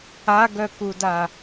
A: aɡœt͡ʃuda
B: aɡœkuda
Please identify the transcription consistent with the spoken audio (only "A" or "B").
B